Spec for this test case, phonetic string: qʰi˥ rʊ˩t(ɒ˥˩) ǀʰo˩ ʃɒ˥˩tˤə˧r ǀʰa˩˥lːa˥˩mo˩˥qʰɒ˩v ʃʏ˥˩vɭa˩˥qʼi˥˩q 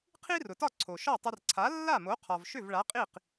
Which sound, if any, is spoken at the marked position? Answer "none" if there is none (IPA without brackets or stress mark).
ɒ˥˩